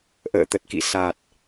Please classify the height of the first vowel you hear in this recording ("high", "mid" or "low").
mid